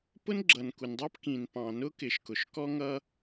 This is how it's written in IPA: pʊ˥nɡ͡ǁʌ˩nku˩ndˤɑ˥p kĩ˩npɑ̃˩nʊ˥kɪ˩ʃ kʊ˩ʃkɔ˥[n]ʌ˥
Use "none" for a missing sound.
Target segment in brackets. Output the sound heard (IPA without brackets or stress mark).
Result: ŋ